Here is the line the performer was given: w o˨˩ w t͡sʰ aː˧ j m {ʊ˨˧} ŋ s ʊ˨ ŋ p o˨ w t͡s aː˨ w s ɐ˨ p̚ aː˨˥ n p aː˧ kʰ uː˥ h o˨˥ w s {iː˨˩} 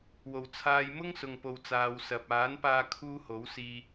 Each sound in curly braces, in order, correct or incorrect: incorrect: ʊ˥, incorrect: iː˧

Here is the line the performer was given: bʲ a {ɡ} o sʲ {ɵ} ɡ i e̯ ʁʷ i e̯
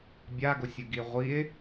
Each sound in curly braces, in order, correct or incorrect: correct, correct

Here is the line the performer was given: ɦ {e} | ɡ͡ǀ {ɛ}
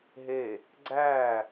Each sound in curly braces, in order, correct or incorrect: correct, incorrect: æ

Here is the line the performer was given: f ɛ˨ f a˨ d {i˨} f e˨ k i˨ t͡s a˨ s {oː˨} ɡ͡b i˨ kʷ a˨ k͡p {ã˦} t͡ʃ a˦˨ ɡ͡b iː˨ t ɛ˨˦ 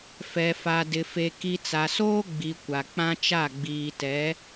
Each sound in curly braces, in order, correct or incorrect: incorrect: ɪ˨, incorrect: oː˦, correct

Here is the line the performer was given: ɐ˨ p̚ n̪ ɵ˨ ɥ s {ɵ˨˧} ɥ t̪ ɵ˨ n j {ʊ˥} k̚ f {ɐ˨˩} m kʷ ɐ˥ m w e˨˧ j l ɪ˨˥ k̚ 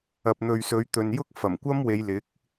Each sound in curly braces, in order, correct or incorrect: correct, correct, correct

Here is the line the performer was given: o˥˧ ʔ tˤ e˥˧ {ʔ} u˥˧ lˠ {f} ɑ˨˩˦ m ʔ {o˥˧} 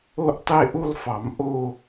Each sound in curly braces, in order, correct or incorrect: correct, correct, correct

